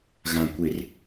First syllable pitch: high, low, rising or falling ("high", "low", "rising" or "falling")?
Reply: low